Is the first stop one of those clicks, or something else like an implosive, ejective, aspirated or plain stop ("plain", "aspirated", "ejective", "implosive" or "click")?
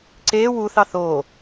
click